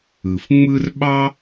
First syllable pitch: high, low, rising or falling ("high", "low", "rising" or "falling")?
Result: low